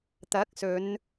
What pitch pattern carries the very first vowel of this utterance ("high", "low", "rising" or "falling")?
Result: rising